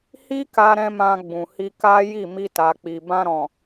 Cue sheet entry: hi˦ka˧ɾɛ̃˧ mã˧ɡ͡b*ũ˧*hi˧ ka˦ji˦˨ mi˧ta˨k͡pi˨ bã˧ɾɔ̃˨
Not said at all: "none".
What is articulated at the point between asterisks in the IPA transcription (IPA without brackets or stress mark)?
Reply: ũ˨